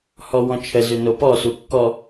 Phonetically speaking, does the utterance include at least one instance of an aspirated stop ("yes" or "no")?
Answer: yes